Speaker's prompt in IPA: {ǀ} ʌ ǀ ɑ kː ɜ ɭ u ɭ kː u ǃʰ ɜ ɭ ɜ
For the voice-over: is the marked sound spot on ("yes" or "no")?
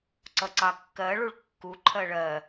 yes